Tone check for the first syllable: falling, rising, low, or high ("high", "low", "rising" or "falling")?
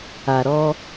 low